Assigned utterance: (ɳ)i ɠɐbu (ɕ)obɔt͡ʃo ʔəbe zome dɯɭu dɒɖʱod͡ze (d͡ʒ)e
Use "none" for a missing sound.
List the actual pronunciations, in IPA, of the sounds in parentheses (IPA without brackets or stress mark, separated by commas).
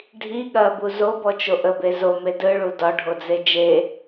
ɖʱ, z, d͡ʒ